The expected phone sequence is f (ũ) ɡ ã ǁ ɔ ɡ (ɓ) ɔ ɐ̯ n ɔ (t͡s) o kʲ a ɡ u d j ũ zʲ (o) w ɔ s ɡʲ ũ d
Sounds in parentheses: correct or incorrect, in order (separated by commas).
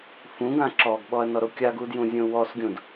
correct, correct, incorrect, incorrect